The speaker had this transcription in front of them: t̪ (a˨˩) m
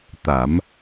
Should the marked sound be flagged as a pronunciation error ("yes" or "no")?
yes